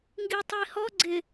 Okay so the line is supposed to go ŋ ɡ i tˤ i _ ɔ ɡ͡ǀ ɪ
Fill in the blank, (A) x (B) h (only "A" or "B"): B